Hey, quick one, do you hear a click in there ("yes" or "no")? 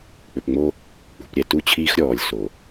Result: no